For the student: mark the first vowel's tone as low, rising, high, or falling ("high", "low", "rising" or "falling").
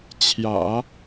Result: low